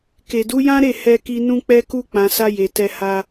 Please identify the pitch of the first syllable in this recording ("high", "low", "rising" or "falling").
low